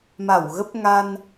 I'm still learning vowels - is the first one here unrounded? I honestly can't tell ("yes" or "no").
yes